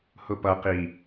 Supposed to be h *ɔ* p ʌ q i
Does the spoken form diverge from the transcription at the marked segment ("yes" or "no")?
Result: yes